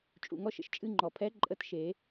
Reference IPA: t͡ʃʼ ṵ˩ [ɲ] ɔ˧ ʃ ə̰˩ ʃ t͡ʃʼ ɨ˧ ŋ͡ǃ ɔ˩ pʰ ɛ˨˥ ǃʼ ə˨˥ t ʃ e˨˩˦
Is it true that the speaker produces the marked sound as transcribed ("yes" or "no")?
no